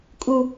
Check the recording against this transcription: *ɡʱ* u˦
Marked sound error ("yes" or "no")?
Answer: yes